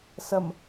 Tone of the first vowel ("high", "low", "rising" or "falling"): low